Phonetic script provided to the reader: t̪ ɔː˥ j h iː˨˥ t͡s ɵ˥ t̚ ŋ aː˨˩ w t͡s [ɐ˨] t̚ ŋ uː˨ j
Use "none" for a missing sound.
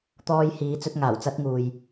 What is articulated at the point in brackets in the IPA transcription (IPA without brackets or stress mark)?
ɐ˥